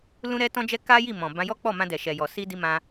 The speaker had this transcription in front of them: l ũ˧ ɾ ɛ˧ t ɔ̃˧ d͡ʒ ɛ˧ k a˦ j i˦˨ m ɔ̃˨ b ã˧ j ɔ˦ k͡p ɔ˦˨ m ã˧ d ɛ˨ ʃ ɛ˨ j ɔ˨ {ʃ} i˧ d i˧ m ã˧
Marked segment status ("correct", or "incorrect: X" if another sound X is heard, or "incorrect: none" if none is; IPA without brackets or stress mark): incorrect: s